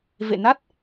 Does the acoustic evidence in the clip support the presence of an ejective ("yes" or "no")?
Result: no